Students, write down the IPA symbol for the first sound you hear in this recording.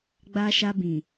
ɡ͡b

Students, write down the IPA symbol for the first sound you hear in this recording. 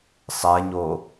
sˤ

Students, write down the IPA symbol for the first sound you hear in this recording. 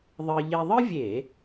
ðˤ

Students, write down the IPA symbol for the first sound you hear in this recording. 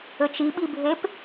ɘ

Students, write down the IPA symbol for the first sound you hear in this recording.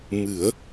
m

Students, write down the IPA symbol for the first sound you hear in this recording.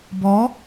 b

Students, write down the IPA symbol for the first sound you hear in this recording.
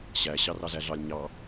ɕ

